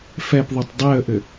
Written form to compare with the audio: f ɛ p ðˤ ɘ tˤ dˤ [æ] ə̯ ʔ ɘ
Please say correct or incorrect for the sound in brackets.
incorrect